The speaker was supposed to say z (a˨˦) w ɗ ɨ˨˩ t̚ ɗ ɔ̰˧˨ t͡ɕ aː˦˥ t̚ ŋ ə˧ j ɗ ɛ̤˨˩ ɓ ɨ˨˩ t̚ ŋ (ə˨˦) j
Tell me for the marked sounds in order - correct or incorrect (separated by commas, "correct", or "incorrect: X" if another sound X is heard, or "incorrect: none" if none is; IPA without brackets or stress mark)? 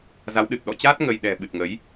correct, correct